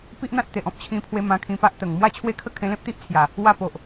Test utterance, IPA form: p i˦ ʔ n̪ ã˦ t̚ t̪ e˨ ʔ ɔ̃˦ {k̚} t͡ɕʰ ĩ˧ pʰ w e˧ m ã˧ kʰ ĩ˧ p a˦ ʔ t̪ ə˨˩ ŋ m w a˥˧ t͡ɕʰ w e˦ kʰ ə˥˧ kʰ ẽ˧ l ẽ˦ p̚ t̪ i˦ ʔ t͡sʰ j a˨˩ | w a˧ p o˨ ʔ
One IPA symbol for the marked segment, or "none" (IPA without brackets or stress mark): p̚